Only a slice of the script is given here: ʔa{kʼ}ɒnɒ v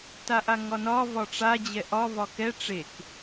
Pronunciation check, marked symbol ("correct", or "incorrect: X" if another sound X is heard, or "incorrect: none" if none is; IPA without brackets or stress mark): incorrect: ŋ